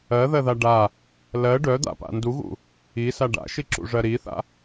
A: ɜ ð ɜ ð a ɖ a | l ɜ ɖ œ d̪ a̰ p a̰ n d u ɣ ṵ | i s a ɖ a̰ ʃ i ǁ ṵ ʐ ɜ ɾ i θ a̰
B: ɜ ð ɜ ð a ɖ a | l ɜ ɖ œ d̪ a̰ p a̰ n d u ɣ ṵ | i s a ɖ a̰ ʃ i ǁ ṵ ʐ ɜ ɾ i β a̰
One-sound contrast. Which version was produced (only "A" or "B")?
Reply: A